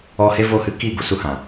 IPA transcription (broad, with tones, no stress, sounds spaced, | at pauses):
ɔ˦ h e˦ v o˦˨ h ɨ˦ k i˦˨ ɡ u˦ s u˧ h ã˨